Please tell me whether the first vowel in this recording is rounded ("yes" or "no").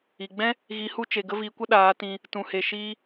no